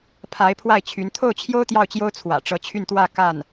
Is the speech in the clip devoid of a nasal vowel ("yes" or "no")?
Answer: yes